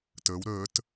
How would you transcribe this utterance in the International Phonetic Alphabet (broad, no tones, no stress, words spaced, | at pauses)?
təːw ɾəːt